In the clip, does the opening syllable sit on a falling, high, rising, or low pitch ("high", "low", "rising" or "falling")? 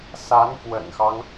rising